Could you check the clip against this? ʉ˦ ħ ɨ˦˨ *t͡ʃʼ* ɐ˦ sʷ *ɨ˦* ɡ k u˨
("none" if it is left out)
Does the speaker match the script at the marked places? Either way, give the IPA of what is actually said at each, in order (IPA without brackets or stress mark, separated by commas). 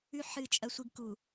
t͡ʃʼ, ɨ˦